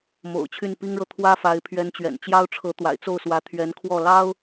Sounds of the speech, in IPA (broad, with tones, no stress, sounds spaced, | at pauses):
m o̰˨˩ ʊ̯ t͡ɕʰ y˥˩ n p i˥ ŋ ɻ ɤ˨ t̪ʰ w ä˥ f a˧˥ ɪ̯ pʰ ɥ ɛ˧˥ n t͡ɕ ɥ ɛ̰˨˩ n t͡ɕ j ɑ˥ ʊ̯ ʈ͡ʂʰ ɤ˧˥ t̪ w a̰˨˩ ɪ̯ t͡s o˥˩ ʊ̯ s w ä˧˥ t̪ʰ ɥ ɛ˧˥ n kʰ w ɔ˥˩ l ɑ˥ ʊ̯